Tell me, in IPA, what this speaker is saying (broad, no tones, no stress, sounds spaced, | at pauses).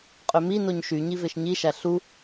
qʼ ø m i n o ɲ ʃ y ɲ i v e ʃ ɲ i ʃ æ ɬ u